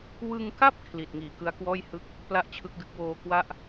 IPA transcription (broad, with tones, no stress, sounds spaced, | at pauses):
w ɯ˧ ŋ k a˥˩ p̚ kʰ l i˨˩ t̚ ŋ iː˨˩ k ɯ˦˥ a̯ k w ɔː˥˩ j h ɯ˥˩ k̚ | p l a˥˩ ʔ t͡ɕʰ ɯ˦˥ k̚ d ɯ˦˥ k̚ w oː˧ k w a˥˩ ʔ